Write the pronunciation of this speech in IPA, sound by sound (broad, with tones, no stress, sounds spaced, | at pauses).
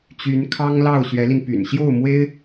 t͡ɕ y˧˥ n kʰ ɑ˥ ŋ l ɑ˥˩ ʊ̯ ɕ ɥ ɛ˧˥ l i˧ n p y̰˨˩ n ɕ j o˥˩ ʊ̯ m w e˥ ɪ̯